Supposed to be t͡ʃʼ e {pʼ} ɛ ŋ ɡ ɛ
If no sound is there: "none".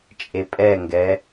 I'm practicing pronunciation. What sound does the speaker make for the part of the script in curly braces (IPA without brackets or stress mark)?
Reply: pʼ